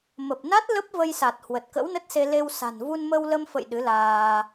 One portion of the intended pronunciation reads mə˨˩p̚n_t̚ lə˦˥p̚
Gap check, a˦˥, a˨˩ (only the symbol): a˦˥